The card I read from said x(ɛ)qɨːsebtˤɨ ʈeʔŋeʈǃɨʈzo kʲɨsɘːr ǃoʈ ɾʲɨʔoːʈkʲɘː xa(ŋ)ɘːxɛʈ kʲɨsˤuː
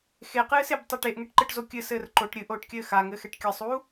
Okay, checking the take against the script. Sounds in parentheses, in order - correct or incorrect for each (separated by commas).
incorrect, correct